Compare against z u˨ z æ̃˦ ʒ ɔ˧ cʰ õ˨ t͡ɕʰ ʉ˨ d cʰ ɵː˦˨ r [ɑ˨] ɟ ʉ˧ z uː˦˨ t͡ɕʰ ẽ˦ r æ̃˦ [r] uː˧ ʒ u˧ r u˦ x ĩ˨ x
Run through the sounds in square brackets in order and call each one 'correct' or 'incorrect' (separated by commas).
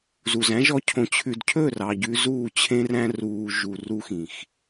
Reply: correct, correct